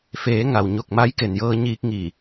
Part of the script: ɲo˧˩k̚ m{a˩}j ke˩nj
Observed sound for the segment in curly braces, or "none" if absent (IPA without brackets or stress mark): a˧˥